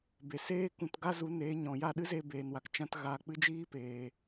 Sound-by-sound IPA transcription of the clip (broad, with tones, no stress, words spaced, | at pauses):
be˨ seː˦kũ˧t ɡa˦zu˨˦neː˨˦ ɲɔ̃˨ja˦˨ ɗɨ˦ze˧beː˨nwa˨k t͡ʃã˦tɣa˧ k͡pɨ˦d͡ʒiː˦peː˨